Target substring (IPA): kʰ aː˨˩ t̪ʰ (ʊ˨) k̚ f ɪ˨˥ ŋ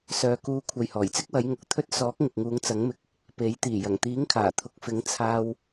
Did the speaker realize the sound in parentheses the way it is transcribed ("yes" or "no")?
yes